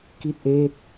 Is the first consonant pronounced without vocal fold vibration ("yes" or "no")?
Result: yes